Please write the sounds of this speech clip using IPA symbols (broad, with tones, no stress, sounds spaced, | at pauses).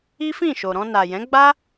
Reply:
i˦ f ĩ˦˨ ʃ o˨ ɾ ɔ̃˧ n a˨ j ɛ̃˨˦ ɡ͡b a˦